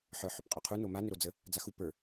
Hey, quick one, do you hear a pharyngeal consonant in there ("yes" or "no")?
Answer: yes